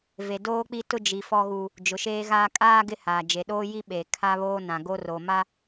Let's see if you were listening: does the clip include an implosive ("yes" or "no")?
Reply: yes